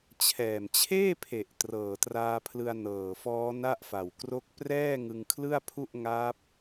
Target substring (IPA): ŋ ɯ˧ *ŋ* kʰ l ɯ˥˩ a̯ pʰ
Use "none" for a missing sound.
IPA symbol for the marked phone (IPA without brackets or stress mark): ŋ